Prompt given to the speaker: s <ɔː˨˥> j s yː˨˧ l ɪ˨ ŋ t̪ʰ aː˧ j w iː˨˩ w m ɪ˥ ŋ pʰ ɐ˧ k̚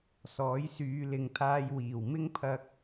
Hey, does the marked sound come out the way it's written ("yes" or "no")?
yes